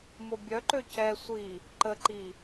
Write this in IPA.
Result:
mobʲœǃø cɛ sʷi | ǃəǃi

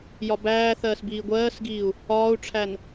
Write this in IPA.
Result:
jɒbæːθɜːs biːɡʷɜːsɡiːu̯ | ɒːu̯ʈ͡ʂʰæn

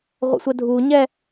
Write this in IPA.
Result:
ʁʷə̰sʷədʱuɲɛ

